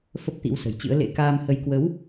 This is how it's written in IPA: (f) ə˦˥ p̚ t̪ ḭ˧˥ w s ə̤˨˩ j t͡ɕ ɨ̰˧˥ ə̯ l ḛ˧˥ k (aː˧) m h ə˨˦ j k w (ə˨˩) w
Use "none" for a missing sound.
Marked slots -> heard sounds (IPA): f, aː˧, ə˨˦

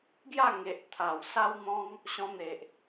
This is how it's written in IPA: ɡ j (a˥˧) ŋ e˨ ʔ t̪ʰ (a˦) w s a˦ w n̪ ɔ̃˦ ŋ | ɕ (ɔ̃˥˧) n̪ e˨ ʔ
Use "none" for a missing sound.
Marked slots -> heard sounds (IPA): a˥˧, a˨˩, ɔ̃˧

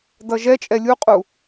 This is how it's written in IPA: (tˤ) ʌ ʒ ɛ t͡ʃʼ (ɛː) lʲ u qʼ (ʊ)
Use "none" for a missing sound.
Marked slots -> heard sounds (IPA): d, ɛ, u

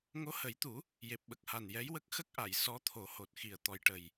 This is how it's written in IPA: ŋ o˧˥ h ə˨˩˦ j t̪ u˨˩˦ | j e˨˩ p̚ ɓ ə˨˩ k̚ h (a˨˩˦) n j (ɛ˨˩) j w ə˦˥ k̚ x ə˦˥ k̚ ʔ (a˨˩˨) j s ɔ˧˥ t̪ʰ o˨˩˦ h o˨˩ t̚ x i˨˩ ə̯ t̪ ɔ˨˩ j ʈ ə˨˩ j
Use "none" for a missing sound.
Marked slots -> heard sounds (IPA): a˨˩, ɛ˧˥, a˨˩˨

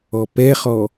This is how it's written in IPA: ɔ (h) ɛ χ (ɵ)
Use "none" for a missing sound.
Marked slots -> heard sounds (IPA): p, ɔ

